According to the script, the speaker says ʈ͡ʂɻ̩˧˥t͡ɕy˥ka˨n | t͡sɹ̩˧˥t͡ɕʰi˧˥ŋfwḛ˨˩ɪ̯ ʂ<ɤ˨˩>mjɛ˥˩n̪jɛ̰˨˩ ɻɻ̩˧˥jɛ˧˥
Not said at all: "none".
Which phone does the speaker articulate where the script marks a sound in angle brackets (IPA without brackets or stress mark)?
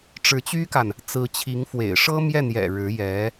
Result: ɤ˥